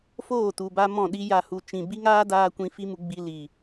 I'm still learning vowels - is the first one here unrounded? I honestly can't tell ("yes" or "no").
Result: no